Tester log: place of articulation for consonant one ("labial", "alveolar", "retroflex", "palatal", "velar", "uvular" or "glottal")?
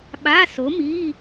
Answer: labial